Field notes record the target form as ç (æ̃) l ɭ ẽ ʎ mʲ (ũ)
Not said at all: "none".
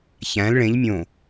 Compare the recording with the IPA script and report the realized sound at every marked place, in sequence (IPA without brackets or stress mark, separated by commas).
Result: æ̃, õ